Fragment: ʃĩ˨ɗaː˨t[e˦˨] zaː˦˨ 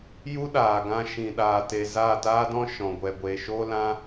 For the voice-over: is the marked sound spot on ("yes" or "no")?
no